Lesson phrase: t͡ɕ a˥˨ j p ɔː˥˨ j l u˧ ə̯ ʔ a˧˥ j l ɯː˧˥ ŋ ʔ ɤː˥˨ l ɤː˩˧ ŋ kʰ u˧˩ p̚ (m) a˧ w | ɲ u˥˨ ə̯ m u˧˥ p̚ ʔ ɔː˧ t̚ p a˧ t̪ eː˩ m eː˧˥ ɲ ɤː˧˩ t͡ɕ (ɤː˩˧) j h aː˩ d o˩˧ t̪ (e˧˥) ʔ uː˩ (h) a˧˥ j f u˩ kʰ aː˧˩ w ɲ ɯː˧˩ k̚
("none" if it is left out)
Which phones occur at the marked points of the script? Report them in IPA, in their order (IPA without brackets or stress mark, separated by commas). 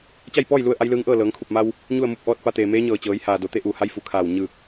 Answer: m, ɤː˩˧, e˧˥, h